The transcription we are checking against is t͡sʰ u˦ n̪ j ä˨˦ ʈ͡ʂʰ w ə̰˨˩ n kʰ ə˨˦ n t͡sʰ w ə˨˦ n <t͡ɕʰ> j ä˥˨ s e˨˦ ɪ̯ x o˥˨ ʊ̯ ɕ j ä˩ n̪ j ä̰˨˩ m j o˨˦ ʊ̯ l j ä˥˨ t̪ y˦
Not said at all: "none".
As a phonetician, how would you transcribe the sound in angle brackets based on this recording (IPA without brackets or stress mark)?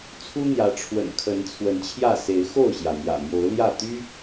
t͡ɕʰ